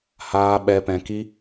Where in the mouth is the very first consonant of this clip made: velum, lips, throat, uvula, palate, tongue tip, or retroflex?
throat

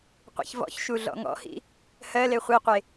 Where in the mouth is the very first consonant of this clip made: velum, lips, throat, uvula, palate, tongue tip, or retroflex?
uvula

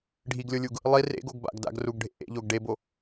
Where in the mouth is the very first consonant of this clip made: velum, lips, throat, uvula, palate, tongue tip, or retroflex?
retroflex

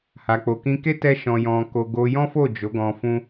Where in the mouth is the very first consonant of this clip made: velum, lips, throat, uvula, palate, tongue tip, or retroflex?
throat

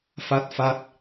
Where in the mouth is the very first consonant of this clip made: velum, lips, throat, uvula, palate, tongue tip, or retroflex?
lips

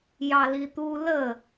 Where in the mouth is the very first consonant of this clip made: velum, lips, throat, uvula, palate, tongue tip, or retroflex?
palate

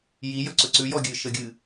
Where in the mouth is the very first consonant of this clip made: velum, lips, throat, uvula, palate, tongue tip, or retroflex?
palate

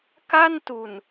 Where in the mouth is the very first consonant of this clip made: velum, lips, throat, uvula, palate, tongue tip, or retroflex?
velum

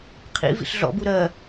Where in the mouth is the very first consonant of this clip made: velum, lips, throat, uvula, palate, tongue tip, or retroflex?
uvula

